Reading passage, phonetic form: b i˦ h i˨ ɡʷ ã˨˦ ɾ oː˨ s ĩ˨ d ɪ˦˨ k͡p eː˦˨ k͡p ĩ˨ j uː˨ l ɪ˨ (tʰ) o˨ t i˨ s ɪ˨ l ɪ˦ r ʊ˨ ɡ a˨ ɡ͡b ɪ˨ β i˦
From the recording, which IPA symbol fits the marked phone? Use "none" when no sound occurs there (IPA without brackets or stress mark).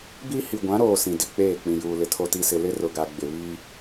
tʰ